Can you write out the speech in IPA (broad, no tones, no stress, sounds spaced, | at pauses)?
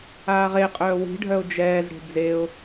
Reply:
aː ʁ e qʼ œː w i̤ ɖʱ œ ʊ̯ d͡ʒ ɛː z ɽ e̤ d͡z e ʊ̯